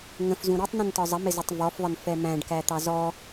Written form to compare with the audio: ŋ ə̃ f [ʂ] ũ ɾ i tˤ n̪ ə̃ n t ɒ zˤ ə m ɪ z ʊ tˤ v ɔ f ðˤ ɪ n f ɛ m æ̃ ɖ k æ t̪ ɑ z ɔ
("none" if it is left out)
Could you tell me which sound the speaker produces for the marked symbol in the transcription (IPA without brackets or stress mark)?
z